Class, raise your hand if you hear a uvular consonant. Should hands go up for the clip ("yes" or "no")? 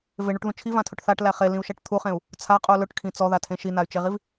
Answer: yes